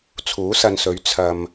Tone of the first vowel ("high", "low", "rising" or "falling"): rising